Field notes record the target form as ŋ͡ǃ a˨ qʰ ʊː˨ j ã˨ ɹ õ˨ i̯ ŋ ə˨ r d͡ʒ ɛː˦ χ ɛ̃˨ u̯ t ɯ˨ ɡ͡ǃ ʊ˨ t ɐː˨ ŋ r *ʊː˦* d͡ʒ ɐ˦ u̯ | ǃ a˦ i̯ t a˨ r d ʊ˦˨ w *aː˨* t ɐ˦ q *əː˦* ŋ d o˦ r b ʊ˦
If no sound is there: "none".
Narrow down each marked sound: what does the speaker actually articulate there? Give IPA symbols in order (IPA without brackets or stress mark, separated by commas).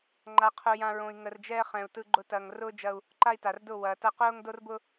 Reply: ʊː˦, ɐː˨, ʊː˦